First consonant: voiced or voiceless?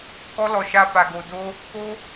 voiceless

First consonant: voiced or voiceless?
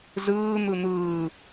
voiced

